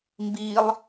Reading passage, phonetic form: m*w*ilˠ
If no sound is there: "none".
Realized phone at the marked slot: b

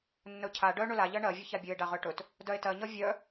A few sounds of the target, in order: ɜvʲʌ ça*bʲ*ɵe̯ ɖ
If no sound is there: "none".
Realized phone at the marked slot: bʲ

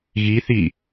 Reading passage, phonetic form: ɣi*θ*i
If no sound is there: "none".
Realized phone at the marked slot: θ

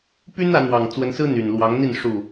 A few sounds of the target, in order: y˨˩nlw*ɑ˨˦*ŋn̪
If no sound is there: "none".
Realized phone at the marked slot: ɑ˨˦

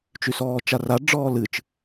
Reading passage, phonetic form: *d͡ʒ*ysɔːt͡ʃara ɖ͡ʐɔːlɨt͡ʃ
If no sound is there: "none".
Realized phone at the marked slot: t͡ʃ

